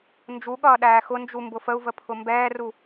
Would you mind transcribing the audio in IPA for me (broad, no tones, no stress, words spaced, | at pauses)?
nd͡ʒuɠʌː ɗæːxʊnd͡ʒu mbʊfəu̯və pʰʊmbɛːru